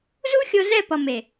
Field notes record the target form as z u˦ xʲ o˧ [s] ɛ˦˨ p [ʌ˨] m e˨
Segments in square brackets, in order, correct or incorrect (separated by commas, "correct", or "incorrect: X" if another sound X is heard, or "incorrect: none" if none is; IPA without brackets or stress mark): incorrect: z, correct